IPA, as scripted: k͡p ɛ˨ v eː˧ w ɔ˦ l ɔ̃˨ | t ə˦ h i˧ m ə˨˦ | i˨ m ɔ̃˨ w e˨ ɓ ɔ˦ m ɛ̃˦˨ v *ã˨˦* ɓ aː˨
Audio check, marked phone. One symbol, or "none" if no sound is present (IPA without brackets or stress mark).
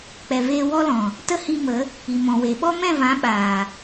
ã˨˦